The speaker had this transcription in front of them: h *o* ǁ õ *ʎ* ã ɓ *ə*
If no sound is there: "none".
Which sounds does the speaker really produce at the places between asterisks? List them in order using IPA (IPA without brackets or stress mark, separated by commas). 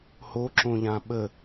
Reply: o, ʎ, ə